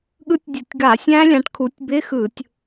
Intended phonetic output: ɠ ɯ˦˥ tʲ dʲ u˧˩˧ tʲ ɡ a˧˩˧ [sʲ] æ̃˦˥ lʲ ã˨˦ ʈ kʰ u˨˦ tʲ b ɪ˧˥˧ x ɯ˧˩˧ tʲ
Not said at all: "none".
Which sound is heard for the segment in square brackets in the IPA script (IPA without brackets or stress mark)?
sʲ